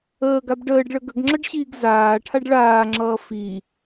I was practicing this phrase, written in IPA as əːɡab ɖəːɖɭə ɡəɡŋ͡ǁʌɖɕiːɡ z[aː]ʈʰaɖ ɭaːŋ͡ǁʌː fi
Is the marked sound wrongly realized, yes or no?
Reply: no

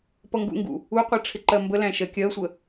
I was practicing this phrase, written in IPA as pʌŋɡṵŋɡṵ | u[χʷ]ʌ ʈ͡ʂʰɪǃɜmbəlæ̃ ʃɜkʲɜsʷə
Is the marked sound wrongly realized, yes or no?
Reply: yes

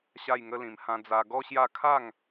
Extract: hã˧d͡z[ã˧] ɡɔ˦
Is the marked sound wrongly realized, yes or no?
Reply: yes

